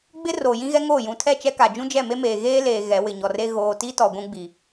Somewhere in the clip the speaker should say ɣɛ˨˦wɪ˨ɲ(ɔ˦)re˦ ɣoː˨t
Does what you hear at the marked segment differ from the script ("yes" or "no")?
yes